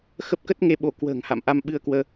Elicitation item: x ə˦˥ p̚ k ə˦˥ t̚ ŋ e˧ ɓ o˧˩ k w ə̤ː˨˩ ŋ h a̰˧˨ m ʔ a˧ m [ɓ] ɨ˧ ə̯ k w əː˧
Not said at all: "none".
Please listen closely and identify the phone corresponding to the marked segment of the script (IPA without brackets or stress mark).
ɓ